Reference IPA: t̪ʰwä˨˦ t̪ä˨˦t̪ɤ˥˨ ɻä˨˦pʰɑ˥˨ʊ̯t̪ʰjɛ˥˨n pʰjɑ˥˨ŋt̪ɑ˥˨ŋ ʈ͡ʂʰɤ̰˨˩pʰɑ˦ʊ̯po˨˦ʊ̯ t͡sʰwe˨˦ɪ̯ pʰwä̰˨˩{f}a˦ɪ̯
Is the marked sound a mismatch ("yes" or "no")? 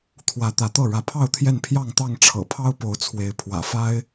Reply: no